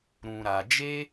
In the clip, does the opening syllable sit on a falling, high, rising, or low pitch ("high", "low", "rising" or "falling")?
low